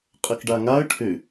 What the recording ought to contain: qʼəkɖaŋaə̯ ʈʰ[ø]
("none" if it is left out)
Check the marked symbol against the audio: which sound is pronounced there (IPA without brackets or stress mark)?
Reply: ø